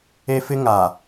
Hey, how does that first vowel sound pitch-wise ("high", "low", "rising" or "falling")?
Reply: high